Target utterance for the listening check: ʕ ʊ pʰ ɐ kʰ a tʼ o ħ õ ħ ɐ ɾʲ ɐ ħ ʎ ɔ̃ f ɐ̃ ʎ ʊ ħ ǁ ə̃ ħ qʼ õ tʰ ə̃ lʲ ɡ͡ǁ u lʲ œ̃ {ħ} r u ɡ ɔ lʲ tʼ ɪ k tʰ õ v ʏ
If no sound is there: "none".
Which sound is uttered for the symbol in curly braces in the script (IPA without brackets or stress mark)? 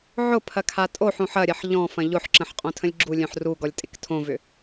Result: ħ